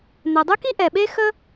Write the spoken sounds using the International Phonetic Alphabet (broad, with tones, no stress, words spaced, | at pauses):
n̪ɛ˩dˤy˥ki˥ ʔɛ˩ ɓe˥xə˥